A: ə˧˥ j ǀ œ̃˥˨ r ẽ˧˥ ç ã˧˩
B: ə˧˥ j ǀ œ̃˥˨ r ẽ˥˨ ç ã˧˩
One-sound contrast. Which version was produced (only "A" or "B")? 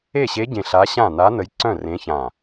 A